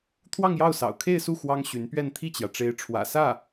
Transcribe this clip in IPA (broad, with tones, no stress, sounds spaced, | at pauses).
t̪ʰ w ɑ˥˧ ŋ j ɑ˥˩ ʊ̯ s ɑ̰˨˩ ʊ̯ kʰ e˥˧ ɪ̯ s u˥˩ x w ɑ˥ ŋ ɕ y˧˥ n p ɥ ɛ˥˧ n t̪ʰ i˥˩ t͡ɕ j ä˩ ʈ͡ʂ e˧˥ ɪ̯ ʈ͡ʂʰ w ä̰˨˩ s ä˥˩